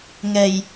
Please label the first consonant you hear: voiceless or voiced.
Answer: voiced